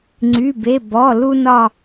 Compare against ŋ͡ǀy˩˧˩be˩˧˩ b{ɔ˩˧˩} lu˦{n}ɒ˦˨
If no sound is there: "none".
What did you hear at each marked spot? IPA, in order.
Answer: ɔ˩˧˩, n

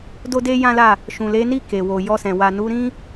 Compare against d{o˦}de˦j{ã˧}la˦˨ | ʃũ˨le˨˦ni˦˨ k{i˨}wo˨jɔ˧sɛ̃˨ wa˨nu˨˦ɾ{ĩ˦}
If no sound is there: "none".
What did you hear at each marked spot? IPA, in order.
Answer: o˦, ã˦, e˨, ĩ˦

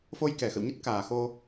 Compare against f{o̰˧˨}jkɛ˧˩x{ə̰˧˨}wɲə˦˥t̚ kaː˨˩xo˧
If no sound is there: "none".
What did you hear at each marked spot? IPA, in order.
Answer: o˧, ə̰˧˨

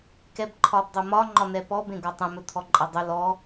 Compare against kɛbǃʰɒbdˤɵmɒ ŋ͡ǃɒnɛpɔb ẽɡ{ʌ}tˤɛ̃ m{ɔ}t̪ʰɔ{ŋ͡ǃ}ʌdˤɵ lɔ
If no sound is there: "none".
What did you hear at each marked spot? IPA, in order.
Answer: ɒ, ɵ, ǃʼ

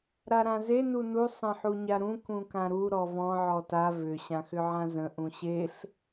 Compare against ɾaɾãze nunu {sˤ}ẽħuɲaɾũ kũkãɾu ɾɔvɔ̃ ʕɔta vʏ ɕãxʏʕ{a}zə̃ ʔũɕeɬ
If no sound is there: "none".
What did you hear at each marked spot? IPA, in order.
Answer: sˤ, ã

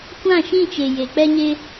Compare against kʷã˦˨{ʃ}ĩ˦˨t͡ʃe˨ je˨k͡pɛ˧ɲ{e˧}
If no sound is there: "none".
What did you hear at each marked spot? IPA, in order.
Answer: ʃ, e˧

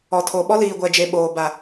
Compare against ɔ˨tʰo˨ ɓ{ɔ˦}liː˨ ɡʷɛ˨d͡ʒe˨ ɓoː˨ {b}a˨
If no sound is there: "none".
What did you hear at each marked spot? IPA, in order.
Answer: ɔ˦, b

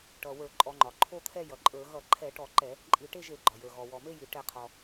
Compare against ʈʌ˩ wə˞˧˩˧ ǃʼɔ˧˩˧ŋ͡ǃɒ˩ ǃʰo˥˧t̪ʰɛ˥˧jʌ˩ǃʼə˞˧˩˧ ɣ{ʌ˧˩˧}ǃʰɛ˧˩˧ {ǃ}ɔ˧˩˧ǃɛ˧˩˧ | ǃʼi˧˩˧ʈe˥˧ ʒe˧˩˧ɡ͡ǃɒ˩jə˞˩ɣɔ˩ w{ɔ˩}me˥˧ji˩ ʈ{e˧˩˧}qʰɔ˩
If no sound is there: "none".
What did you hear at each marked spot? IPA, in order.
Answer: ʌ˧˩˧, ʈ, ɔ˩, ɛ˧˩˧

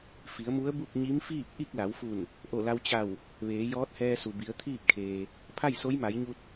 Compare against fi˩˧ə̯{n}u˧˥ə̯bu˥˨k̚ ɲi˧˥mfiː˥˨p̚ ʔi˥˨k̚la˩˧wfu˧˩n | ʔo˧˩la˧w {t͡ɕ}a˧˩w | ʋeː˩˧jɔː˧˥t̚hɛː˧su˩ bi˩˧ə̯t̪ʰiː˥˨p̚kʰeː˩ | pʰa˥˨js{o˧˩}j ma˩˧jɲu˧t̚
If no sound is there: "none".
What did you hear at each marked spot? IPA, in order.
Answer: m, t͡ɕ, o˧˥

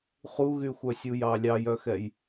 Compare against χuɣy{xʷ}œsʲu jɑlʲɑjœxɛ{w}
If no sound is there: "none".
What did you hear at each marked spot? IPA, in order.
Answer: xʷ, j

